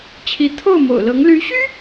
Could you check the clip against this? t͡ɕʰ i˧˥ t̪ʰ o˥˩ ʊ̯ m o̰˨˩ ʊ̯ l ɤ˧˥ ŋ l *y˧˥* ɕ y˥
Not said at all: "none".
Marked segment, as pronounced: y˧˥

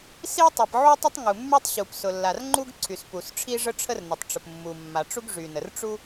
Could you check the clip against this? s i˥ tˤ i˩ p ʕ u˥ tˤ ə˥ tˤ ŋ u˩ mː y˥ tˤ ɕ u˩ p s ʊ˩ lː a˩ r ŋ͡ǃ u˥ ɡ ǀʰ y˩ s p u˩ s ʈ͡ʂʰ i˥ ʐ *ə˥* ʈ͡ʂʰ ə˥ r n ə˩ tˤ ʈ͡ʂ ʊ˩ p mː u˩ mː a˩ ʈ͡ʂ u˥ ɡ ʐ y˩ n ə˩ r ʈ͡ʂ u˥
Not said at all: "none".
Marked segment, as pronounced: ə˥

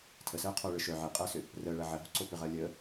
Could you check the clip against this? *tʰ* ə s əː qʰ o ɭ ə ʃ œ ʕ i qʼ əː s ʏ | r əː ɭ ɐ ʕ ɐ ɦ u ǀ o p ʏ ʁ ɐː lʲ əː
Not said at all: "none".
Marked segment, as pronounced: tʰ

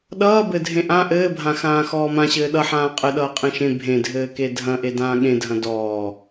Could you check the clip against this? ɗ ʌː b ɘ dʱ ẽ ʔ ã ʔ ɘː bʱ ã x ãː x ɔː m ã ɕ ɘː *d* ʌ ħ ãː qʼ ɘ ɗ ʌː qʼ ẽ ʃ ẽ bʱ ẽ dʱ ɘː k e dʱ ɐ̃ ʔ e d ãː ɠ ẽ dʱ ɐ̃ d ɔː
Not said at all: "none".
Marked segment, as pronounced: ɗ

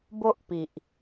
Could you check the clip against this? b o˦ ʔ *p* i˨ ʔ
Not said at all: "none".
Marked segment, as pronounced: p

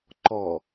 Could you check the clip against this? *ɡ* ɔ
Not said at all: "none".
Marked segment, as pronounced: ǃ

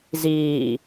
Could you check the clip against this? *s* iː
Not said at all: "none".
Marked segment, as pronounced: z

